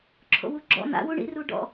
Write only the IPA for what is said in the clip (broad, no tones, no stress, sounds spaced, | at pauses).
ǁʰ o̰ w u ɡ͡ǁ ɔ̰ n̪ a̰ w u ɳ ḭ r u ɖ ɔ̰